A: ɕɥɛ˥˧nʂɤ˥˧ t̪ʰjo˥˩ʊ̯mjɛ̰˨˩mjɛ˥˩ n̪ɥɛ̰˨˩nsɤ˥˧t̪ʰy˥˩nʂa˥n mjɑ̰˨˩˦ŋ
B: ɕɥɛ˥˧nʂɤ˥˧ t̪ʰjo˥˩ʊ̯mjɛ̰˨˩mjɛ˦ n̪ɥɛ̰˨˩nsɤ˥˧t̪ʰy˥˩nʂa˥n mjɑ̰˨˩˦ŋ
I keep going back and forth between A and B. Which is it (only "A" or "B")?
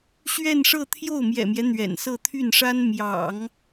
B